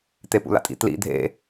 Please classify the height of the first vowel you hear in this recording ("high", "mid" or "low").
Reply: mid